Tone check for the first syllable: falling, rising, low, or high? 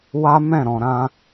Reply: high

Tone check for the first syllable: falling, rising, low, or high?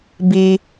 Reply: low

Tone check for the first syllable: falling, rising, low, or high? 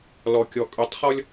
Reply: low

